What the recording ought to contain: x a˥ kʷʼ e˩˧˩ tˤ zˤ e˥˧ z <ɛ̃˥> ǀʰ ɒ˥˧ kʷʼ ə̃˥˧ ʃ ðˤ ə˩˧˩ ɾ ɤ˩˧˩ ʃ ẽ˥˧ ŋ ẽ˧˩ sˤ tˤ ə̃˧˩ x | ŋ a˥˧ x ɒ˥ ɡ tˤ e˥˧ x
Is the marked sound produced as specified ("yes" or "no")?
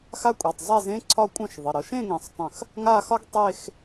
no